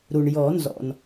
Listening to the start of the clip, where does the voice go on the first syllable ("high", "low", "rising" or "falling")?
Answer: low